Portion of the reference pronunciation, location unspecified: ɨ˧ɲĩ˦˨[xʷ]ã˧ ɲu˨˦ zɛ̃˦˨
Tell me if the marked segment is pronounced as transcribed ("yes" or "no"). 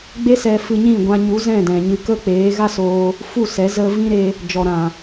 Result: no